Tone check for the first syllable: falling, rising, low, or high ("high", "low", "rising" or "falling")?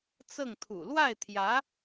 falling